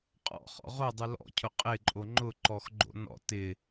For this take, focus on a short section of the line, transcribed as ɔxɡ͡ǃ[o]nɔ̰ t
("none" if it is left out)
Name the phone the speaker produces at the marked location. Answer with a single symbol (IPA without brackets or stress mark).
o̰